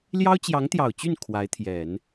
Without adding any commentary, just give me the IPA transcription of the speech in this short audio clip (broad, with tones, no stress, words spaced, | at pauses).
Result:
ljɑ˥ʊ̯t͡ɕjɑ˧˥ŋt̪jɑ˨˩ʊ̯t͡ɕy˥˩n kʰwa˧˥ɪ̯t̪ʰjɛ˨˩˦n